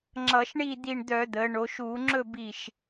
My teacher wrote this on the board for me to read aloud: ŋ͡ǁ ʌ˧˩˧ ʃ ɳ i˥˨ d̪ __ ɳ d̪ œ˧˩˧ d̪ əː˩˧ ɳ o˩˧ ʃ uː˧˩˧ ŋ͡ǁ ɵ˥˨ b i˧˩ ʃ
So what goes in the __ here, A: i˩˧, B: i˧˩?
B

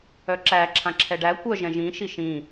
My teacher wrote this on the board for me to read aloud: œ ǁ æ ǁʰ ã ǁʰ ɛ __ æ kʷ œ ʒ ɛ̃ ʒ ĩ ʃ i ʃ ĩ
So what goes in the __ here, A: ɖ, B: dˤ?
A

